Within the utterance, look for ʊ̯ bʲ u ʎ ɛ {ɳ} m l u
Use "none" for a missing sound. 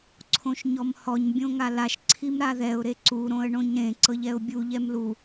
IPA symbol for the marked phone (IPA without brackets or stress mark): none